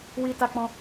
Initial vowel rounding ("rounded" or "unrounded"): unrounded